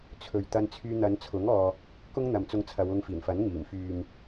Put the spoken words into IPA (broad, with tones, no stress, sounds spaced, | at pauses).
t͡sʰ ɵ˨ ɥ t̪ ɐ˧ n t͡sʰ yː˧ n̪ ɐ˨˧ n t͡sʰ ʊ˨˥ ŋ ɔː˧ | k ʊ˥ ŋ n̪ ɐ˨ m t͡s ʊ˧ ŋ t͡sʰ ɐ˨˧ w ʊ˧ ŋ f iː˨˩ n f ɐ˨˥ n ŋ iː˨˩ m f yː˨ m